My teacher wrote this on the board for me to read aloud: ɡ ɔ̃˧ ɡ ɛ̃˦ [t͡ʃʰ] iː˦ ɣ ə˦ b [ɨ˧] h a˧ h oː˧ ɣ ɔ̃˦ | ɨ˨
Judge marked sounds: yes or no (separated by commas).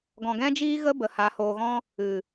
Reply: no, no